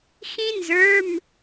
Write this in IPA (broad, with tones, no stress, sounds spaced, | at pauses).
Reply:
x ĩ˥ n z ə˞˧˥˧ m